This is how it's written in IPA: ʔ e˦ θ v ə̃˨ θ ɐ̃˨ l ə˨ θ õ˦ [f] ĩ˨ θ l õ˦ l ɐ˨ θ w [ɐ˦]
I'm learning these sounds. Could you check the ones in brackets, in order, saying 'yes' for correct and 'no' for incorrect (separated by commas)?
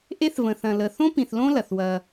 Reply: no, yes